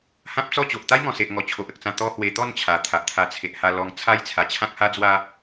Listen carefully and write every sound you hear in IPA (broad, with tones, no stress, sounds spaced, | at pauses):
h ã˦ p̚ t͡s ɔ˥˧ t͡ɕ o˨ ʔ t̪ a˦ j ŋ ɔ̃˨˩ s e˨ ʔ ŋ ɔ˨˩ t͡ɕʰ o˨ ʔ ə˨ k̚ t͡s ã˧ t̪ ɔ˦ h w e˧ t̪ ɔ˥˧ n t͡ɕʰ a˨˩ t̪ʰ a˨ ʔ t̪ʰ a˧ t͡sʰ e˨ ʔ h a˧ l ɔ˧ ŋ t͡sʰ a˦ j t͡sʰ a˨˩ t͡ɕʰ ã˦ k̚ h a˦ d͡z w a˦